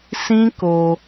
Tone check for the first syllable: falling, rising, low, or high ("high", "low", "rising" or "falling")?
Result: high